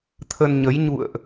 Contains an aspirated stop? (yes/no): yes